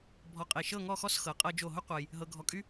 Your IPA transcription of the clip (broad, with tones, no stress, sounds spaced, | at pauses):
bʱ ɔ˧˩ qʼ e˧˩ ʃ ɤ˥˧ ŋ ɔ˥˧ x ɔ˥˧ s x ɤ˩˧ qʼ ɤ˧ d͡ʒ o˧˩ ɦ ʊ˥ qʷ ɤ˧ j | ɦ ɤ˧ ɡʱ ɔ˧ kʼ y˥